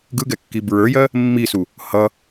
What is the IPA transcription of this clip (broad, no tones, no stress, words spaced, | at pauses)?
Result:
ɡɯɡɛkːi bɹə˞jɜ | mːisu | hʌ